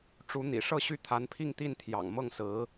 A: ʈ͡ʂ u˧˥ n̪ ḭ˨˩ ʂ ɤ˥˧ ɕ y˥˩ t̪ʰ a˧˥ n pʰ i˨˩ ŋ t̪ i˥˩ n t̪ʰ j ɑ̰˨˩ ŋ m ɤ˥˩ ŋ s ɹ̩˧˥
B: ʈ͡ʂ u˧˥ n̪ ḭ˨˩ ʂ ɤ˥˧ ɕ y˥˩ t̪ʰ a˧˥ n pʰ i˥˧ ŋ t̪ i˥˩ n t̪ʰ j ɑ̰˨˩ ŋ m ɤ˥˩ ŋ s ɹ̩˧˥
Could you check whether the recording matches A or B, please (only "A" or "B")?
B